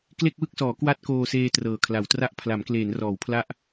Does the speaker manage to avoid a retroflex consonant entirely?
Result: yes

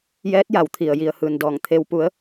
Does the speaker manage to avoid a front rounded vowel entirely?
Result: yes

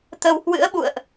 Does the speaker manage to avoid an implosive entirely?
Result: no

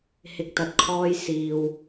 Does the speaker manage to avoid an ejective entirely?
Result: yes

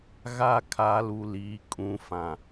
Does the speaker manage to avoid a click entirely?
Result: yes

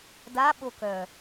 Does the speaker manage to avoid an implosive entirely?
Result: no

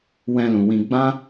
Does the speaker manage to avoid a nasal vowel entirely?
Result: no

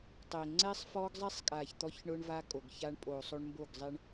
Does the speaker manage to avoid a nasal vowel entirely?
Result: yes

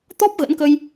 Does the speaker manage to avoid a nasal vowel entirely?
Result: yes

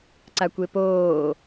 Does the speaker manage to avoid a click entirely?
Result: no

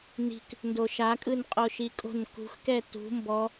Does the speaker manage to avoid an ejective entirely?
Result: no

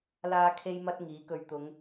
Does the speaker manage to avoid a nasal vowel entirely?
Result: yes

